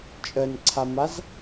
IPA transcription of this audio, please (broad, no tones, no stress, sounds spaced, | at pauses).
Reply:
t͡ʃʼ ə n ǀʰ a m a z